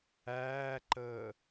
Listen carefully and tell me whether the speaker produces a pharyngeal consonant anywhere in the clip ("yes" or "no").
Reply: no